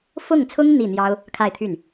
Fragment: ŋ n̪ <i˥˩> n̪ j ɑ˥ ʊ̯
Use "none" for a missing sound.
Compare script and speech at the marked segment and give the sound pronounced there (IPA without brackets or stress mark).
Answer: i˥˩